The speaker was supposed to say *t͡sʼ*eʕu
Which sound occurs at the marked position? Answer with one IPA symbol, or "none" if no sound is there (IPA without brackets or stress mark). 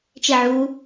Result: t͡ʃ